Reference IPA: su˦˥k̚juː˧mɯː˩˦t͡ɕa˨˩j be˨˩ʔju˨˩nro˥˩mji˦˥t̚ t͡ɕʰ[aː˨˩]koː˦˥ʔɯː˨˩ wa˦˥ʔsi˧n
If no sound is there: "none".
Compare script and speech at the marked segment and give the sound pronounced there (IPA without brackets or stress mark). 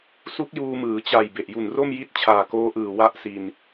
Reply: aː˨˩